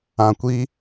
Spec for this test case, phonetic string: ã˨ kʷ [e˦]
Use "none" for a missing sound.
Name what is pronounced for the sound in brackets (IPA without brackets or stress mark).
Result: i˦